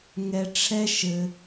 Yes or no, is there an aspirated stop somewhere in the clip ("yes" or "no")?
yes